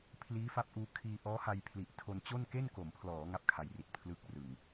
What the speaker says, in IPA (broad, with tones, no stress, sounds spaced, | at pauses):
pʰ l iː˦˥ f a˦˥ p̚ ʔ uː˧ kʰ iː˧ ʔ ɔː˦˥ h a˧ j pʰ l i˨˩ ʔ tʰ o˧ n t͡ɕ o˥˩ n k e˥˩ n k o˩˦ m pʰ l ɔː˩˦ ŋ a˦˥ p̚ kʰ a˨˩ j r i˨˩ t̚ pʰ l ɯ˦˥ k̚ r ɯ˨˩ ŋ